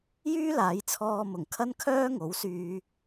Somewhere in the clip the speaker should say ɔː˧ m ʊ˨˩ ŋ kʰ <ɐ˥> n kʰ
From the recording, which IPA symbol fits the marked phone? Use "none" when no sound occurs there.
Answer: ɐ˥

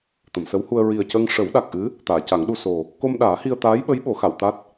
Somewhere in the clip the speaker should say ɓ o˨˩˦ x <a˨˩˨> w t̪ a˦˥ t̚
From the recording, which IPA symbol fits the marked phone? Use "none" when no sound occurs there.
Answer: a˨˩˨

